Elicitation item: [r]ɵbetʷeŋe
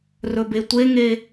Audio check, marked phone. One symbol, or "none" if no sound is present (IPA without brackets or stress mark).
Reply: r